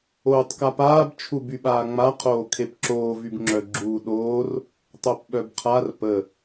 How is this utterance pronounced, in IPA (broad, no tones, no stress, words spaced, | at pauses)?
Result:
oːtˤkapaːb t͡ʃʰubyɓaːŋ͡ma qʰoːkʰepǁoː vybŋ͡ǁœ ɡ͡ǁuːɗoːr | tˤopɓœbqʰar pə